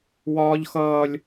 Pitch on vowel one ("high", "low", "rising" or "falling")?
high